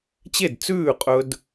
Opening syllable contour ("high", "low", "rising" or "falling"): falling